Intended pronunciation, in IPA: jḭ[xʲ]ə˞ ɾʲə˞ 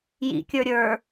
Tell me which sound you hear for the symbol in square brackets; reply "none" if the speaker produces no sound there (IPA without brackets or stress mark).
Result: kʲ